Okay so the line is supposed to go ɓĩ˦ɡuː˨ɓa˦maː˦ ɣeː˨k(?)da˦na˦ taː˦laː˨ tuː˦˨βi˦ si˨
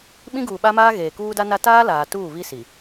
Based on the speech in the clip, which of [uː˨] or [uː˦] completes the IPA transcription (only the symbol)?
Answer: uː˦